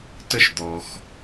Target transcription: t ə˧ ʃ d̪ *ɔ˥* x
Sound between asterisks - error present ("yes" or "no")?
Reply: yes